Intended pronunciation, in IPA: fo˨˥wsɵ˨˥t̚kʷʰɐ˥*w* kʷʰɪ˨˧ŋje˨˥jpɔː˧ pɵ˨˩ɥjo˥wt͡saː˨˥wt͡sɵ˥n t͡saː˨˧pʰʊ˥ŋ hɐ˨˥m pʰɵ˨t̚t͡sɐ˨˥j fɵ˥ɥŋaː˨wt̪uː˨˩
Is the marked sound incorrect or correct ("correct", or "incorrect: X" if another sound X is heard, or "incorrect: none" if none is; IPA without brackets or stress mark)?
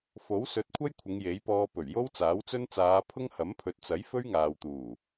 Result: incorrect: j